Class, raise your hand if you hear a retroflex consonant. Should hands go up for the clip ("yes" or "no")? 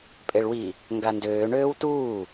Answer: yes